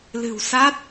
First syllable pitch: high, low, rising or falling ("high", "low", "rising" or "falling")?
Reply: low